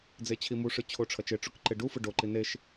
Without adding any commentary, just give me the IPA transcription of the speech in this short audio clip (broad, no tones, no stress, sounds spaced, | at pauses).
d͡z e t͡ɕʰ i m u ʂ ɯ t͡ɕʰ o ʈ͡ʂʰ ʌ t͡ʃ e ʈ͡ʂ u k ǃ e ɖ u f ɯ ɖ o ǃ i n e ʃ